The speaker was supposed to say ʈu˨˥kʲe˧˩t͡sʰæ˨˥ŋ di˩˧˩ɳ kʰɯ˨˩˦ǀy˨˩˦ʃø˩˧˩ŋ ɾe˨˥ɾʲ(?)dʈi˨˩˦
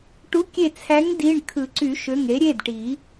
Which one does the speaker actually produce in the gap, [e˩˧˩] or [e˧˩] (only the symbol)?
e˩˧˩